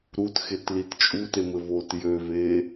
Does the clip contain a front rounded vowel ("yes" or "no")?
yes